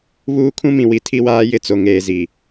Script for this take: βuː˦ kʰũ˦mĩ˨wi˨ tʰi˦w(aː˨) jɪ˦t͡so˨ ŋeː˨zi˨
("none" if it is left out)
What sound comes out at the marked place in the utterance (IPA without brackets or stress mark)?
aː˦